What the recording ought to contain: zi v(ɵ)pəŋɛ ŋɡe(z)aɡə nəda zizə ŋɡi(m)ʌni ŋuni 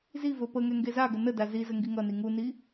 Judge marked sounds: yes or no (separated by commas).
yes, yes, no